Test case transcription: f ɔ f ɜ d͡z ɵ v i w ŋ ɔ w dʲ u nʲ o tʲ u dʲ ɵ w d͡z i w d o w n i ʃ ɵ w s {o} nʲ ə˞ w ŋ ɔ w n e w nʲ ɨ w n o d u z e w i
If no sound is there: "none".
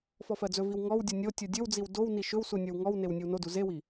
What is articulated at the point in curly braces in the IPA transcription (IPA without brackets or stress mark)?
u